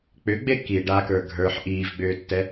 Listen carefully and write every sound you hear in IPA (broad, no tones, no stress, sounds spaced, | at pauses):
k͡p ʏ ɡ͡b e k i ɖ a k ə˞ ɡʱ ə˞ ħ ʔ iː v ɡ͡b ʏː tː ɛ